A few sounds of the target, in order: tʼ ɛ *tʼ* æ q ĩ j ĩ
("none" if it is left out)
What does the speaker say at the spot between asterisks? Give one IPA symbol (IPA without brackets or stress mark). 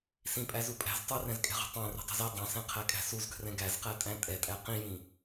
tʼ